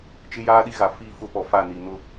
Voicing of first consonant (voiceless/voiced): voiceless